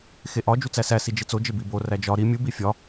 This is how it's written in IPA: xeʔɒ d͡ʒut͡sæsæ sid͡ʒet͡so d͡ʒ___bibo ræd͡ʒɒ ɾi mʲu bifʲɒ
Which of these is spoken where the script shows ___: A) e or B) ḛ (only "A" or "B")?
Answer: A